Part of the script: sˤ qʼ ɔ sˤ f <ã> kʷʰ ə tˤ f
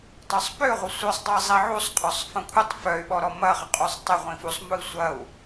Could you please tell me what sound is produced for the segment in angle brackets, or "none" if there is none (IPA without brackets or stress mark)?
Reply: ɐ̃